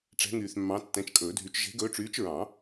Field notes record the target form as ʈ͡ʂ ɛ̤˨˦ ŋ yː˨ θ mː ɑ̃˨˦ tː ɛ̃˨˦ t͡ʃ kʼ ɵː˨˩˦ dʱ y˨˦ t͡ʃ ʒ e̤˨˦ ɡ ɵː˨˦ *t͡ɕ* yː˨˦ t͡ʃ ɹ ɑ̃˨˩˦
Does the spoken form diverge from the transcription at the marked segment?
yes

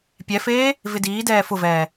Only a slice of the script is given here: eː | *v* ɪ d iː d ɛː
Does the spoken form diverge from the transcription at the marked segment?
no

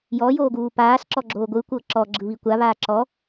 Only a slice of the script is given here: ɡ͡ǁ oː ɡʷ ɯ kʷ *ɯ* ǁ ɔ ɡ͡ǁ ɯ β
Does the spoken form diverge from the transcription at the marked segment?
yes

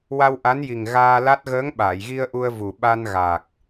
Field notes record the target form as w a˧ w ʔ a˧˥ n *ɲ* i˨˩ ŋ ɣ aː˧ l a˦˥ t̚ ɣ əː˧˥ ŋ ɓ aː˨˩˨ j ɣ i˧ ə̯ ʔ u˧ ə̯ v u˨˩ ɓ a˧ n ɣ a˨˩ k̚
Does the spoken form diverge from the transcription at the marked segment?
yes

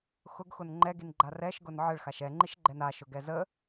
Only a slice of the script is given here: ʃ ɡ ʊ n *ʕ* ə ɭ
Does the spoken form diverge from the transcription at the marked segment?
no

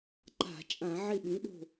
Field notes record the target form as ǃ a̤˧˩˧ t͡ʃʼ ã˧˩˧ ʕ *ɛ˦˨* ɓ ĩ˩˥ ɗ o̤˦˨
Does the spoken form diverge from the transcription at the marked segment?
yes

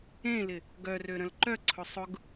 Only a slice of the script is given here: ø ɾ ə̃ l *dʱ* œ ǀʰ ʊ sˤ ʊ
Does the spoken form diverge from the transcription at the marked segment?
yes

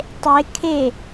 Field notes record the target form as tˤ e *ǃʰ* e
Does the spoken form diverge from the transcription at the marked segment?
yes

